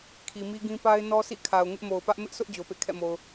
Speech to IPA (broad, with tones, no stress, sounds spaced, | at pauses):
kʰ i˨ m i˦ ɡ ĩ˦ p a˦ ɪ̯ n ɔ˦ s ḭ˦˨ kʰ a˨ ʊ̯ ŋ ɪ˦ ʔ m o˨ ʊ̯ p ä˦ ʔ m ɪ˦ ʔ sʰ ʊ˦ ʔ d͡ʑ o˨ p ḛ˦˨ kʰ ɛ̰˦˨ m o˨ ʊ̯